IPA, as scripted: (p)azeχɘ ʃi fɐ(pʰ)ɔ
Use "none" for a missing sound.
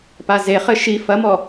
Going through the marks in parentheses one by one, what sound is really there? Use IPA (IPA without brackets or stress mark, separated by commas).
p, m